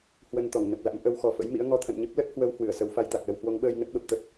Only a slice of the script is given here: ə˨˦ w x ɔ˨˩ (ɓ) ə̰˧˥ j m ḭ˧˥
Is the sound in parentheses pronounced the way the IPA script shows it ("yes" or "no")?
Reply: no